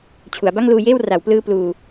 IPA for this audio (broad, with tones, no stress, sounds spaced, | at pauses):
t͡ɕʰ u˩˦ a̯ b a˥˩ ŋ l uː˧ j eː˥˩ w r a˩˦ w p l ɯː˧ p l uː˧